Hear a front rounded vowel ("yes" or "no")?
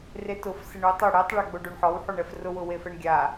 no